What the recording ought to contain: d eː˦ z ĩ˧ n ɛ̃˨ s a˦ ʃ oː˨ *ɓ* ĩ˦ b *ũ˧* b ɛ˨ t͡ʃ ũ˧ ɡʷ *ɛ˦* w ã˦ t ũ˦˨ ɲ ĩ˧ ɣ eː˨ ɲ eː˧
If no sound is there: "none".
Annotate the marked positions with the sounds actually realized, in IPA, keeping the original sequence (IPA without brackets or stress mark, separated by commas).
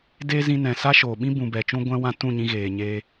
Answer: ɓ, ũ˨, ɛ̃˦